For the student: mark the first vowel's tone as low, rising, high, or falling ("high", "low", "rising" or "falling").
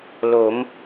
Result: rising